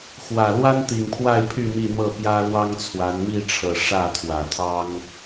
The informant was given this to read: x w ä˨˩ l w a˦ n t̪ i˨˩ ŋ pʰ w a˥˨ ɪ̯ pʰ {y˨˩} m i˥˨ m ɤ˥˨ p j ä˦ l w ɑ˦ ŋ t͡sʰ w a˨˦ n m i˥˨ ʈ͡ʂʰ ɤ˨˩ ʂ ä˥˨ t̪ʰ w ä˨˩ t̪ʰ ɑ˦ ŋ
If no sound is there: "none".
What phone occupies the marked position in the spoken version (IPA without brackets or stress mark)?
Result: y˥˨